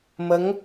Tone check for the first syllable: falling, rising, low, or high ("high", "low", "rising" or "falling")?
rising